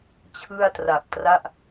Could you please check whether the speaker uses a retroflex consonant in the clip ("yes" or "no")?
no